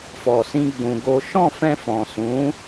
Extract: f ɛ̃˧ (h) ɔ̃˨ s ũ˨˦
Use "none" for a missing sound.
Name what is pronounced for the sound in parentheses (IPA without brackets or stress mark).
f